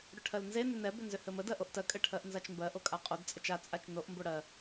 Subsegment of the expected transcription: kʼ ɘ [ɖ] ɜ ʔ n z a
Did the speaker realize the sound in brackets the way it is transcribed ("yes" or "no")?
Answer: no